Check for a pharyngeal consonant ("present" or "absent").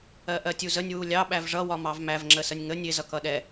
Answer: absent